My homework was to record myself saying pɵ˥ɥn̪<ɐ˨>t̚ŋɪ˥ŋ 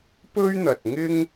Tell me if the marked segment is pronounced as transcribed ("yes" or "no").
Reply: yes